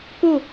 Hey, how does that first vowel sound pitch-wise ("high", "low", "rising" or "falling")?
falling